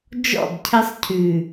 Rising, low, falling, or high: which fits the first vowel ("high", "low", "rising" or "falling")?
falling